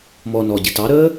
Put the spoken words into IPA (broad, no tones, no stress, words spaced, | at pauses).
mɔ nɔɟɪ tɑɾəː